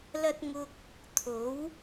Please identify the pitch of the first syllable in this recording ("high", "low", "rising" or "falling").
high